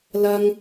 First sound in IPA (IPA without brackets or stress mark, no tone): l